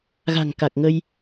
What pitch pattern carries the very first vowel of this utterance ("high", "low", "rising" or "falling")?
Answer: low